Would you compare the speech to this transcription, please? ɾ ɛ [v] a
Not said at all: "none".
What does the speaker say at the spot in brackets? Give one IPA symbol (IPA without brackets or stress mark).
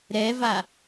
v